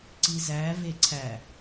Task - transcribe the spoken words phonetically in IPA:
ǀizæ veǀʰæ

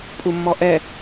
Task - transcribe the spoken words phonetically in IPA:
pʼumːɔʔɛ

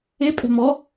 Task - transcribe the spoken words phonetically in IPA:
e pʼɛ̤mɔ

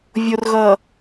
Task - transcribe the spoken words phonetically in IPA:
vʲorɣʌ

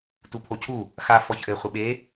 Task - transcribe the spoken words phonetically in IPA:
tupʰocʰu | xa fɔçʔɘ χʷɘɓe

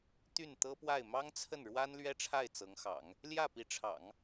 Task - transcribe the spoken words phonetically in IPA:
t̪y˥˩nt̪ɤ˥pwa˥˩ɪ̯ mɑ˥ŋt͡sʰə˥˩nɻwa˥n lɥɛ˥ʈ͡ʂʰa˥˩ɪ̯ t͡sɤ˧˥ŋxɑ̰˨˩˦ŋ | ljä˥˩pi˧˥ʈ͡ʂʰɑ̰˨˩˦ŋ

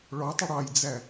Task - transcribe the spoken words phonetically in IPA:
ɭɔtˤə ɽɑjd͡zæ

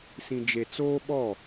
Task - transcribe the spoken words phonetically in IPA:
sĩ˨d͡ʒe˨t͡soː˦ ɓɔ˦˨

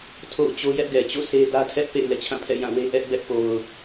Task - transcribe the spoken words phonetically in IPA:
tʰo̰˦˨ʊ̯t͡ɕo˦jɛ˦ʔ ɡɛ˨t͡ɕo̰˦˨ sʰe˦dä˦tʰɛ˦ʔpḛ˦˨ɪ̯ lɛ̰˦˨t͡ɕʰã˦˨pʰɛ̰˦˨ jã˦˨we˦ ʔɛ˦ʔbɛ˦ʔpo˨ʊ̯

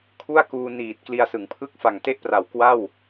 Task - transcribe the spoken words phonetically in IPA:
kʰu˥˩a̯kuː˧ niː˨˩t̚ kli˧a̯sɯ˩˦ŋpʰɯ˥˩k̚ fa˨˩ŋte˥˩ʔpra˨˩w kwa˥˩w

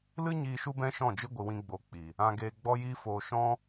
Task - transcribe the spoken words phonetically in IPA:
lɨ˦ɲiː˧ ʃu˦bɛ̃˦ʃɔ̃˦˨d͡ʒɨ˦ ɡʷɨ˧wĩ˦ɡ͡bo˧ k͡pi˨ | ã˧ ɡeː˧ɡ͡bɔ˦jiː˦ foː˧ʃɔ̃˦

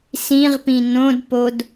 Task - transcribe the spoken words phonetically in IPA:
sĩʁpĩ nõdpod

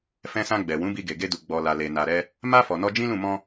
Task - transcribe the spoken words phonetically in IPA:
fɛ̃˧sã˧ɡ͡bɛ˨ wũ˨˦bi˧ɡe˨ ɡe˧du˨ ɡ͡bɔ˨ la˨le˨ na˨ɾɛ˧ | ma˧ fɔ˨nɔ˧d͡ʒĩ˦lũ˦˨ mɔ̃˧

